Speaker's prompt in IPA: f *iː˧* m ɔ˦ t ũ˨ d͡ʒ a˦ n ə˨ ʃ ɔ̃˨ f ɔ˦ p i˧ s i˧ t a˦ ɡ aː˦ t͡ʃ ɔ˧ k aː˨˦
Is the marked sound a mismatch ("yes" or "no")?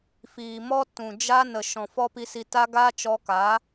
yes